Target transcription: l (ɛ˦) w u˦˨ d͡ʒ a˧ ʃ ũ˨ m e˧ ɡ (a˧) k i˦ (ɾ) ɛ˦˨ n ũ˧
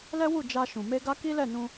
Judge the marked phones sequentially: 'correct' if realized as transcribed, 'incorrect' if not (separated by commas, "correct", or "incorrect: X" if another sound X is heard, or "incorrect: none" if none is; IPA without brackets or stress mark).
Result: correct, correct, incorrect: l